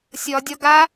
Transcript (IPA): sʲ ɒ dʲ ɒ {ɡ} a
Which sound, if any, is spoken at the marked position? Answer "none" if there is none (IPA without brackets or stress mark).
ɡ